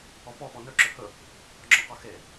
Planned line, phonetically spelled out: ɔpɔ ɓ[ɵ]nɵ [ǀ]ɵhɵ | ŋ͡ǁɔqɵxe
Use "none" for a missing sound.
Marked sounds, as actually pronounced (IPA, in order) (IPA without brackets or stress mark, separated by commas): ɔ, ǁ